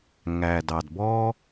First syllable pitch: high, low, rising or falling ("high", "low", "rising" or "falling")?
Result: low